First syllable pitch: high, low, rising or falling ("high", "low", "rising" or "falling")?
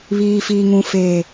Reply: low